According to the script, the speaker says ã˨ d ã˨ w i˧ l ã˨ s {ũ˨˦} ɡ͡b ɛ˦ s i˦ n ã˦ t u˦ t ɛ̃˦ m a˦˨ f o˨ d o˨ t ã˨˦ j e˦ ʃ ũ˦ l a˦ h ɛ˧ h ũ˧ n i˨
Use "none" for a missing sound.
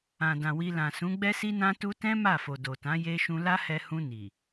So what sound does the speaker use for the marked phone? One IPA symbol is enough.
ũ˨˦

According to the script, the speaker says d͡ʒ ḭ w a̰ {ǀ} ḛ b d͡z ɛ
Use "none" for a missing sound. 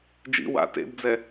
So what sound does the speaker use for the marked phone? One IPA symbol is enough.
t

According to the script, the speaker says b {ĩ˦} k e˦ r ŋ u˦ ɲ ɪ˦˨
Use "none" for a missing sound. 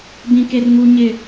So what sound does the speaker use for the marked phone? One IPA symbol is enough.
ĩ˦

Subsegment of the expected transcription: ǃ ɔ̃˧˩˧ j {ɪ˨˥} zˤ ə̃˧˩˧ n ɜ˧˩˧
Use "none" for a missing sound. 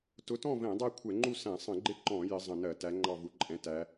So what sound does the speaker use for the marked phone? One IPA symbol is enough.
ɪ˨˥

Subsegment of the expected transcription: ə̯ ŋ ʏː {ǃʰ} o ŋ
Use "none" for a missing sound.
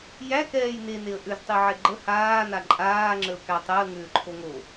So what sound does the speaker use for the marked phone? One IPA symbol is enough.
ǃʰ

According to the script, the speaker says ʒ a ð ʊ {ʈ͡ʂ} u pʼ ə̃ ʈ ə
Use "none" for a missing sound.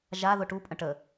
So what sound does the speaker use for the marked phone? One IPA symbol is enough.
ʈ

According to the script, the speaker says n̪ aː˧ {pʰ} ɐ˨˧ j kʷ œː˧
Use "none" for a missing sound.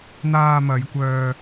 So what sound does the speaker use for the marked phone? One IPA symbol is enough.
m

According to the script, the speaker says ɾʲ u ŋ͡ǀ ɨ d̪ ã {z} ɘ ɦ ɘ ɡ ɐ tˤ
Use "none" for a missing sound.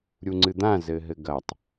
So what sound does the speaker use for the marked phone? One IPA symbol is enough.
z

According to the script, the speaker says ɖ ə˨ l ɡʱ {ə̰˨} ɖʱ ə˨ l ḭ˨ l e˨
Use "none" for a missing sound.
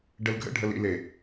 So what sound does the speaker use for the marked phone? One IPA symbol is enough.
ə̰˦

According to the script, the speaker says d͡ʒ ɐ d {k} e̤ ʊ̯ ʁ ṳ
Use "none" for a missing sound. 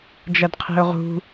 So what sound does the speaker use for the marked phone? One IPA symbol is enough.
qʰ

